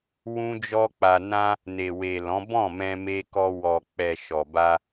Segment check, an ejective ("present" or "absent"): absent